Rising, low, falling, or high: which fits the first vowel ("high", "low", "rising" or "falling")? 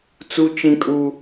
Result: high